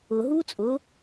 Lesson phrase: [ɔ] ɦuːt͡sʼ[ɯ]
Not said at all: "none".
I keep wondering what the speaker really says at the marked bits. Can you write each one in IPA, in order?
ʊ, ʊ

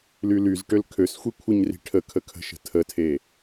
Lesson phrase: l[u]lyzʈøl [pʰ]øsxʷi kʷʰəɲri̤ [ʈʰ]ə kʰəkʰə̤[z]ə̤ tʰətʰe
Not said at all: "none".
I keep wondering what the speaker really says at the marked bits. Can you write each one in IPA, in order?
y, kʰ, ʈʰ, ʃ

